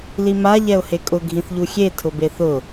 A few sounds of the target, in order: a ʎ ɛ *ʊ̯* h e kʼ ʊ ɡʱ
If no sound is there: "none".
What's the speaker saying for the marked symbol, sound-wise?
ʊ̯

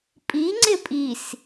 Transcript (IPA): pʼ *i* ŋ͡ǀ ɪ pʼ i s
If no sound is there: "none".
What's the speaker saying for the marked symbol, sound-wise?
i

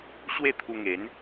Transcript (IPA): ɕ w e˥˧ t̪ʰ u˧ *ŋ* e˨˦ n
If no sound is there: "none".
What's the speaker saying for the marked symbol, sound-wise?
ŋ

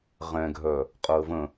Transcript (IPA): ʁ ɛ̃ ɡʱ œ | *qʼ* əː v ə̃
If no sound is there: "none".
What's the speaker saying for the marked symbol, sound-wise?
qʼ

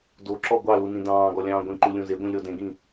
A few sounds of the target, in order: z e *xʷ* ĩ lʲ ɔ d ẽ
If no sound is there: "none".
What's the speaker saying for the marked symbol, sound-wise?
ɡʷ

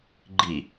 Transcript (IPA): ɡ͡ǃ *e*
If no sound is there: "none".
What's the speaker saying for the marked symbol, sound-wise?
i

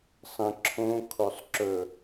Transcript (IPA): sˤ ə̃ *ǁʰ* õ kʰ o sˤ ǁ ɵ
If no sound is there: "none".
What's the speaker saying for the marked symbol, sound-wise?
ǁʰ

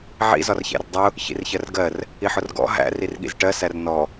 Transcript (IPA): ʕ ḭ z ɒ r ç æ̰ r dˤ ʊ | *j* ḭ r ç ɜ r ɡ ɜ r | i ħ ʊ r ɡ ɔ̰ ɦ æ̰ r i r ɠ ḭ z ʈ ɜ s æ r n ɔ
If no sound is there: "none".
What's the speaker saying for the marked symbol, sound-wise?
ç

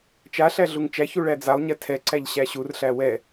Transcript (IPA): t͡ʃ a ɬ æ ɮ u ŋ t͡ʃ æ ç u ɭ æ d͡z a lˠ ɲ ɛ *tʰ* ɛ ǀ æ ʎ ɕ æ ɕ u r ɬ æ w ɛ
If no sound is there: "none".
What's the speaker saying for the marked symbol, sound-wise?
tʰ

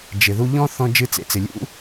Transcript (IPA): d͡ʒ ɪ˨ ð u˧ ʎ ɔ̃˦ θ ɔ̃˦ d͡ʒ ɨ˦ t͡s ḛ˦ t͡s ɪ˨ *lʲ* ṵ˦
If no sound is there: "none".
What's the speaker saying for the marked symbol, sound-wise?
lʲ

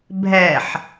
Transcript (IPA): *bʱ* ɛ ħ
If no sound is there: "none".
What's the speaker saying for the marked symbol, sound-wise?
bʱ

